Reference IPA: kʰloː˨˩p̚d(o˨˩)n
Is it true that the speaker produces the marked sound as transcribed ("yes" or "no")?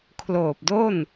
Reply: no